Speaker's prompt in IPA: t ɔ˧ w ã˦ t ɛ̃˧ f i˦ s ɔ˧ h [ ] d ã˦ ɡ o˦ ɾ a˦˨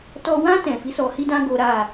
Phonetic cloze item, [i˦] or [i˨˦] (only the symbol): i˦